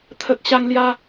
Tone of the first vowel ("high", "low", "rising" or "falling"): low